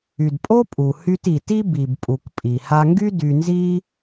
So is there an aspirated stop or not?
no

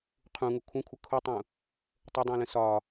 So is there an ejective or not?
no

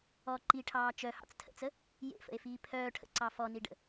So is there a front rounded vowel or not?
yes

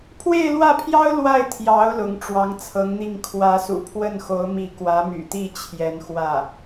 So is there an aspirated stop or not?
yes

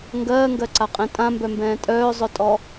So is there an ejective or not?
yes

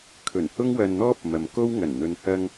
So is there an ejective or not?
no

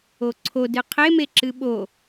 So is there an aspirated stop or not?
yes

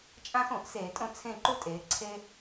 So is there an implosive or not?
no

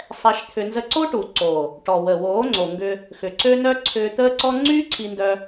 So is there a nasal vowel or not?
no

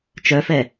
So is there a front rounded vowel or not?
yes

